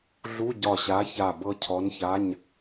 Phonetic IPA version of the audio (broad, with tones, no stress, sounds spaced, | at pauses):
ɮ u˧˥˧ ɟ ɒ˧˩ ɕ a˨˥ ç a˧˩ b ɤ˧ cʰ ɔ˨˥ n ç a˧˥˧ ɲ